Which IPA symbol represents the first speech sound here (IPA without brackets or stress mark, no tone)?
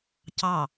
c